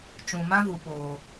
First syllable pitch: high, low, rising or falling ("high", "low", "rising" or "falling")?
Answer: low